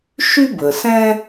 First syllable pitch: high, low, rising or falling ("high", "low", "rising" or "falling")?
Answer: high